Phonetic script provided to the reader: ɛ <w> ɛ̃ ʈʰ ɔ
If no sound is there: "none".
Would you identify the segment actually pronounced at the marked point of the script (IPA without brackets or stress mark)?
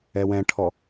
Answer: w